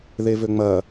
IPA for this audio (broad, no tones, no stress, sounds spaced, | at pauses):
ð e v ø ŋ͡m ɐ